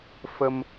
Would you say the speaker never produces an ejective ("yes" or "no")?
yes